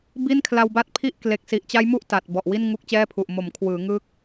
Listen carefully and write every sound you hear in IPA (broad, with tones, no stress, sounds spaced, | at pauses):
b i˥˩ n kʰ l a˧ w b a˥˩ t̚ pʰ i˥˩ ʔ k l e˨˩ k̚ s i˨˩ ʔ t͡ɕ a˦˥ j m u˦˥ ʔ t a˨˩ t̚ b ɔ˨˩ ʔ w i˥˩ n ŋ u˦˥ k̚ t͡ɕ ɛː˥˩ pʰ u˨˩ ʔ m o˩˦ m kʰ w ɯː˩˦ ŋ ɯ˦˥ k̚